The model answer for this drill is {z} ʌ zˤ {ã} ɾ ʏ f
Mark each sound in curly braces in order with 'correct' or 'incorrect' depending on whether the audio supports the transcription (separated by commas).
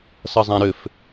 incorrect, correct